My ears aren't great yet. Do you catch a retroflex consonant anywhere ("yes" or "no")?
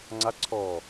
no